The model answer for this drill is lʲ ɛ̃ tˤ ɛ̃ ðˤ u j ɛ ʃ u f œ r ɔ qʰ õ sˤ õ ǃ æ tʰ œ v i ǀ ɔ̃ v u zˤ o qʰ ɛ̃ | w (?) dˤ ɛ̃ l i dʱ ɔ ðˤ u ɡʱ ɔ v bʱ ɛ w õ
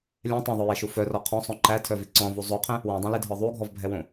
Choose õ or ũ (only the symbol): õ